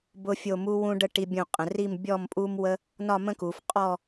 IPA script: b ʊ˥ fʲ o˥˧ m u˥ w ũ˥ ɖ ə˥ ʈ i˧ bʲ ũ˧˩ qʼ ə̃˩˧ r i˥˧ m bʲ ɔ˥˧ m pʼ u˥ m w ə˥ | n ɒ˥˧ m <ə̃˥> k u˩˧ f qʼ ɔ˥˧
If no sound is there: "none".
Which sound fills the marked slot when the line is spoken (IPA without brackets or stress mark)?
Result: ə̃˥